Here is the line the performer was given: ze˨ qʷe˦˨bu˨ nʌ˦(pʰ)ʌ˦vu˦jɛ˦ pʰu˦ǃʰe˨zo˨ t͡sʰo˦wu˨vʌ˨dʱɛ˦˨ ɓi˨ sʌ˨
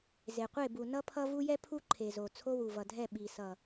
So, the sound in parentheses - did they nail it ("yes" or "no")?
yes